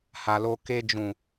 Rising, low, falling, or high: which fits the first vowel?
low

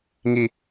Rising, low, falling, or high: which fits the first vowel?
high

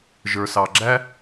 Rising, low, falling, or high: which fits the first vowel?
low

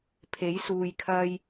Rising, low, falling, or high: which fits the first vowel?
rising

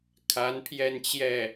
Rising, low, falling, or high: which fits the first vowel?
rising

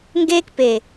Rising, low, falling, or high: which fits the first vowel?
high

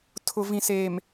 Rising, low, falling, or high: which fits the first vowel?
low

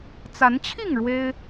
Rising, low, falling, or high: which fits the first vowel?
rising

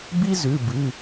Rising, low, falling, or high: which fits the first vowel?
high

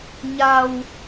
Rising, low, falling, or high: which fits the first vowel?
low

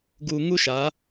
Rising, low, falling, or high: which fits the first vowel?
low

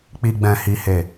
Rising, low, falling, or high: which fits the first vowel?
low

